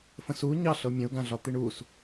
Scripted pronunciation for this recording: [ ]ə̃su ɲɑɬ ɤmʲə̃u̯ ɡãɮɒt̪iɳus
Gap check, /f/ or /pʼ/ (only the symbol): f